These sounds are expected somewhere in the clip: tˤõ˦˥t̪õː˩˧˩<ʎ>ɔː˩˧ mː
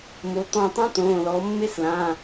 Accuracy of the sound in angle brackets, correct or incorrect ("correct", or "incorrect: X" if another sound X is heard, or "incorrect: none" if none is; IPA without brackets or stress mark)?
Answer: incorrect: l